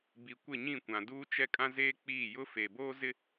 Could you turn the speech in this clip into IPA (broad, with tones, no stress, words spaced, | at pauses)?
bi˨kʷɪ˦˨ɲĩ˦˨kʷã˨ duː˦t͡ʃɛ˦kʼã˦ zeː˦k͡piː˦˨jʊ˦ feː˨boː˦zɪ˦